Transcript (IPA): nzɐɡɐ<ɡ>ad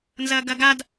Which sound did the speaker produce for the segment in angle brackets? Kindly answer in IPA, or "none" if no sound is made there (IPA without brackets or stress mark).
ɡ